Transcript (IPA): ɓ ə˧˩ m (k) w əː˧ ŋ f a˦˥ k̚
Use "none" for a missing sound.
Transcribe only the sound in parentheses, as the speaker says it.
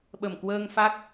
k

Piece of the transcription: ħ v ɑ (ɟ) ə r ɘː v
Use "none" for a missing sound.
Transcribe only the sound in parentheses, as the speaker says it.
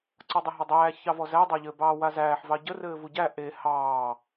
ɟ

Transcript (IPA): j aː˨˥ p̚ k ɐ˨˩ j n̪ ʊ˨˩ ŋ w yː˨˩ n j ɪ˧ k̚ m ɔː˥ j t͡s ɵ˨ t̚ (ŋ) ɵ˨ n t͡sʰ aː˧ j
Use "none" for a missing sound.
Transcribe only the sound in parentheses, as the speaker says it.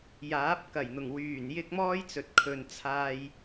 kʰ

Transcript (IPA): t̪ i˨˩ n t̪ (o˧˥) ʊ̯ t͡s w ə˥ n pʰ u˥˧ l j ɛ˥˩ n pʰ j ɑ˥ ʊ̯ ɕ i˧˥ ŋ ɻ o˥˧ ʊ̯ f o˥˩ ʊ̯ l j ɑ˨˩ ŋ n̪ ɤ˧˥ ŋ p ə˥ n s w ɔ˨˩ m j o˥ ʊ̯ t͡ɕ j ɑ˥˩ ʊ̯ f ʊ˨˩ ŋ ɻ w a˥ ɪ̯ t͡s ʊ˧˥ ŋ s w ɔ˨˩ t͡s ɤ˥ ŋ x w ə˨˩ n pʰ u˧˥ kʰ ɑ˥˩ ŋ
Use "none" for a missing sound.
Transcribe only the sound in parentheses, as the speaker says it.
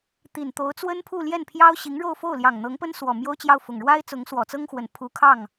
o˧˥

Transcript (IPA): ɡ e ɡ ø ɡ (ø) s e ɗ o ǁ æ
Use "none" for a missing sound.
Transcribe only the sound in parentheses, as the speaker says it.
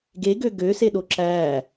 ø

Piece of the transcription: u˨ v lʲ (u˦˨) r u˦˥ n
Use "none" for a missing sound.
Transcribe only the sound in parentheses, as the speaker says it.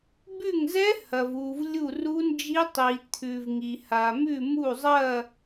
u˦˨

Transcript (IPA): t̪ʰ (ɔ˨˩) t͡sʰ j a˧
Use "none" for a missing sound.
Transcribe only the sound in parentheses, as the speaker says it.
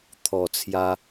ɔ˨˩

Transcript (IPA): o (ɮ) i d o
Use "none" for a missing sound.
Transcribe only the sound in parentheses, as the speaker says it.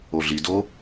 ɮ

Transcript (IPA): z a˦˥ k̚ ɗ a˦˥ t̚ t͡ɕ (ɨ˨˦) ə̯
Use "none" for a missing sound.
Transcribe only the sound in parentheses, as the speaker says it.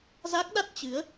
ɨ˨˦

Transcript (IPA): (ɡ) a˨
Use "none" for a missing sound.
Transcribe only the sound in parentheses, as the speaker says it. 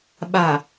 ɓ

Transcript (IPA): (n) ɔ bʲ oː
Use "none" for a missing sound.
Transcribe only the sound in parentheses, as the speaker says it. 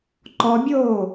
ǃ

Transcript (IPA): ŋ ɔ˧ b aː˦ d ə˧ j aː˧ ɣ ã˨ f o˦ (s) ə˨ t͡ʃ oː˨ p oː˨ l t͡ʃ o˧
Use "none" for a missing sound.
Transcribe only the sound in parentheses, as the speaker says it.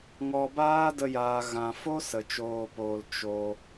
s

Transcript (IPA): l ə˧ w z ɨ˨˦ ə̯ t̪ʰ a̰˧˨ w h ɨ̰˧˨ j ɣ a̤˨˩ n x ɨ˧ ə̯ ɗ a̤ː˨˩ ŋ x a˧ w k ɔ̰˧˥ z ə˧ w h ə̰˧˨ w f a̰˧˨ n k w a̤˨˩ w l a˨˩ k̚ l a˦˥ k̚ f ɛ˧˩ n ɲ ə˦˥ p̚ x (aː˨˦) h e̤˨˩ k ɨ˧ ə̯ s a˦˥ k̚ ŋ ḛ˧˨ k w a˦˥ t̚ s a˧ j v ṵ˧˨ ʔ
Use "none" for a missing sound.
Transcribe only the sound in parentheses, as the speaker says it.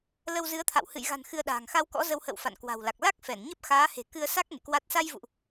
aː˨˦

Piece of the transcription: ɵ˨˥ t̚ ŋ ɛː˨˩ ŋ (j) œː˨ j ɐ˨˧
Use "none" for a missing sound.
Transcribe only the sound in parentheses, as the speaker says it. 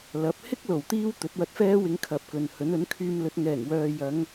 w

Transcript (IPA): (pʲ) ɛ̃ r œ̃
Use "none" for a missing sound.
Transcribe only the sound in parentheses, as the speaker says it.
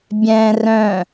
bʲ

